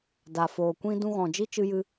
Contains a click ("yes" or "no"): no